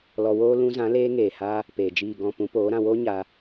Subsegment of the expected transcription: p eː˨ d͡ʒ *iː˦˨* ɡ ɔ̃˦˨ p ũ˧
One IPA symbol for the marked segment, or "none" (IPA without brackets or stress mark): iː˦˨